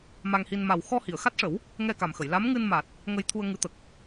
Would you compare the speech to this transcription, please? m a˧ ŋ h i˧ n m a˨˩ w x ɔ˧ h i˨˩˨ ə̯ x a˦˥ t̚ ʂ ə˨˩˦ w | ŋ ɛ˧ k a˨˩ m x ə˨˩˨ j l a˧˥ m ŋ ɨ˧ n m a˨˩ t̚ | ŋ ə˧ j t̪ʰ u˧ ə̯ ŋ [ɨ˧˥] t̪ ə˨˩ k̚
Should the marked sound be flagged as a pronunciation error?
no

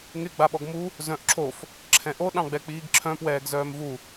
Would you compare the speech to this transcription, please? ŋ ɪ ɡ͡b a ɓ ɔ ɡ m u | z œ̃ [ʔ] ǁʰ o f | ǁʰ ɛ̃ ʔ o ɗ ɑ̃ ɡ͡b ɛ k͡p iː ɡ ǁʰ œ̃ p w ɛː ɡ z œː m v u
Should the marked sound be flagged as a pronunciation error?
no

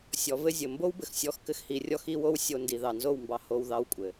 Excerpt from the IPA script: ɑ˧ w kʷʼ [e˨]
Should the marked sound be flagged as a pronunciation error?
yes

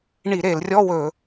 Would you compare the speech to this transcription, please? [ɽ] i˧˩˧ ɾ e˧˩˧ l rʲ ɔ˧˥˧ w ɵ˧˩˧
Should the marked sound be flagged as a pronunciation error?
yes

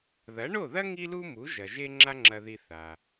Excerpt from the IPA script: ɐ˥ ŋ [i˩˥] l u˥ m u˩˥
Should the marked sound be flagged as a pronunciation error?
yes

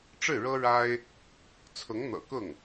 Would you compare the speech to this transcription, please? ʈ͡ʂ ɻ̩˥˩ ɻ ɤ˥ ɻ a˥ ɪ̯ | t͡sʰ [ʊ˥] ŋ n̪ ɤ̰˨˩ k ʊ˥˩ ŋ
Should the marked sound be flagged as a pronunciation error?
yes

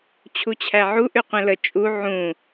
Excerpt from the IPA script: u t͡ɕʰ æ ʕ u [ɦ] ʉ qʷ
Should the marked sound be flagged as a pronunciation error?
yes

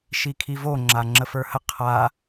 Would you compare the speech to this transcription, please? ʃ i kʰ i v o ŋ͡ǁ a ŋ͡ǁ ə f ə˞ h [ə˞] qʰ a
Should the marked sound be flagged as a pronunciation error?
yes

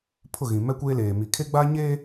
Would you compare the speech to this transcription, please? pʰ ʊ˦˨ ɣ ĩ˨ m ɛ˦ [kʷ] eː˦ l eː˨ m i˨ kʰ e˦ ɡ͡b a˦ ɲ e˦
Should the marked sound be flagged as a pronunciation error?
no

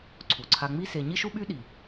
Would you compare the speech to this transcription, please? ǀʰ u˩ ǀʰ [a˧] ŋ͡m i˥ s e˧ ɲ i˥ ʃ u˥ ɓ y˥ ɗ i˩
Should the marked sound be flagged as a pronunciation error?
no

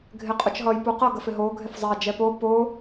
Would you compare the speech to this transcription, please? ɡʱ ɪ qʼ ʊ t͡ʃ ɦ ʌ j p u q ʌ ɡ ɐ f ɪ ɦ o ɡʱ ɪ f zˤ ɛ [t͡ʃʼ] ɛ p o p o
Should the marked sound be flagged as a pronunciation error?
yes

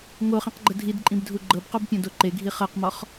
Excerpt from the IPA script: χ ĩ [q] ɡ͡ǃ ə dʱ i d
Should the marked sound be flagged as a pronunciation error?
no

